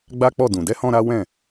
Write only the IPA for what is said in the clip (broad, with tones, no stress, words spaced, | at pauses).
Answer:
ɡ͡ba˦k͡pɔ˦˨ dũ˨dɛ˧hɔ̃˧ ɾa˦wɛ̃˦˨